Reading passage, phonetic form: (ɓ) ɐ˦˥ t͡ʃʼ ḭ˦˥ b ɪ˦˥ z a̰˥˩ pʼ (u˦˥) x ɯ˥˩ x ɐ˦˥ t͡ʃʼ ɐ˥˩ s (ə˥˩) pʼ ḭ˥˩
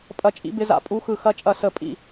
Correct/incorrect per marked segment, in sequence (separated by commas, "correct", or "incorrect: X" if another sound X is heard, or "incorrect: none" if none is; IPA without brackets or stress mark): incorrect: pʼ, correct, correct